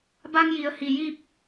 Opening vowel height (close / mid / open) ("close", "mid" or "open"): open